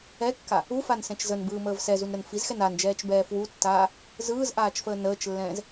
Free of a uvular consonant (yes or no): yes